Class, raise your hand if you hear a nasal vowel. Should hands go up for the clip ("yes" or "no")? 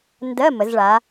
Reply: no